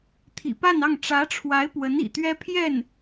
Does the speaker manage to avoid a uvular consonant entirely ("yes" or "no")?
yes